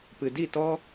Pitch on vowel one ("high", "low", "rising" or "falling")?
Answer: low